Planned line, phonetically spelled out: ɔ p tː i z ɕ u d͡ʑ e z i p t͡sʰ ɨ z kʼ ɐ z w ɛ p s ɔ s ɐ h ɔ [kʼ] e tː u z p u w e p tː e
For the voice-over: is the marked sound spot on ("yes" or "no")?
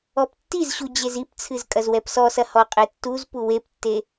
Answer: no